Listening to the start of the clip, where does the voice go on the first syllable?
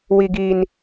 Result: high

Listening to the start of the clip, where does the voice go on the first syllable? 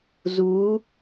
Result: rising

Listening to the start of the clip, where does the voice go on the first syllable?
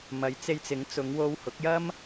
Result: rising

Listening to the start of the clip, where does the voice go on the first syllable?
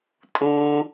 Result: low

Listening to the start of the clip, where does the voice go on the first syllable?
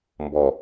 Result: low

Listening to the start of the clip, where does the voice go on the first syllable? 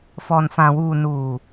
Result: low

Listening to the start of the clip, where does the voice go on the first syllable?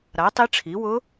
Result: rising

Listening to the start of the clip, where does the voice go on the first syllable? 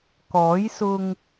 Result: rising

